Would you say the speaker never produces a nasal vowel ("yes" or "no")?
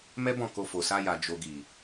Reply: no